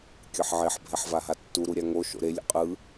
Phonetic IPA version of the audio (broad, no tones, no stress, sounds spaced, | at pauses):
kʲ ɤ ħ ʕ e ħ bʱ ɛ ħ v a ɦ a tː u ɾ u ɾʲ a ŋ o ʃ o̰ ɾ e lʲ ṵ qʼ ɯ